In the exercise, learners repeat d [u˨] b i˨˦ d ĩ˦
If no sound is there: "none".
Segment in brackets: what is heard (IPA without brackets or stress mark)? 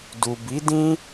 u˨